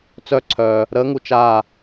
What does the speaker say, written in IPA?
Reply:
t͡sœ˥˩ǀʰœː˨ | ɾəː˨˥ŋu˨ t͡ʃaː˥˩

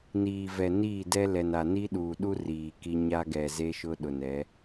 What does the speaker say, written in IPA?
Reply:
niː˨ vɛ˨niː˦˨dɛ˦ lɛ˨na˨ ni˦ɗuː˨ɗu˦ riː˨ki˦ ɲa˦ɡɛ˨ ze˦ʃʊ˦ɗʊ˨nɛ˨˦

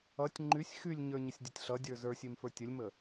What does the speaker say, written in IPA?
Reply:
ʌtʲ ŋ͡ǃysʲ xylʲɲə˞ɲəsʲ dʲʌtʲɬʌ dʲə˞zə˞sʲem fə˞tʲəlʲmə

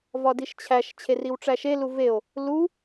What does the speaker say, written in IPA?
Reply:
vɒdiʃt͡ɕʰæʃ t͡ɕʰeriwʈ͡ʂæʃe luveo̯ | lu

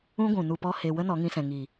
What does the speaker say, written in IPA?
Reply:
ũ˦ɡʷũ˨ nu˧pɔ˦he˧ wə˦nɔ˨˦ŋĩ˧sɛ̃˨ ŋiː˨

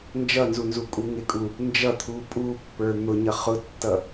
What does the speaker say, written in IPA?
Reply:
nd͡ʒʌnzunzukʼu ŋɪkʼu | nd͡ʒʌt̪ʰu pʼupːə˞ n̪ʊɲʌ χʊtːʌ

